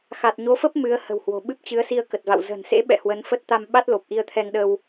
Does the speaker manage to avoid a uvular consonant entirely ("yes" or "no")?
yes